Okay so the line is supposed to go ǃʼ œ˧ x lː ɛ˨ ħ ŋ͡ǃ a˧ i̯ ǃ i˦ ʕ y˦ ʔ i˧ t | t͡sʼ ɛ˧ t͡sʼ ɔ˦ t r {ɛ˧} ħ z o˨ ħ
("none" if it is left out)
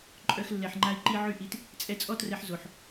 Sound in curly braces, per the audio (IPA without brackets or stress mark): ɛ˧